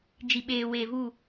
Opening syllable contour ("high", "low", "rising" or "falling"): low